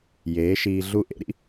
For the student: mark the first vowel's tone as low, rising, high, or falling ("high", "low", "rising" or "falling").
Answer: rising